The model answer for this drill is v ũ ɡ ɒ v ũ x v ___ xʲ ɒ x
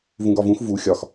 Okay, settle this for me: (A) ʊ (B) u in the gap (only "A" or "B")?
B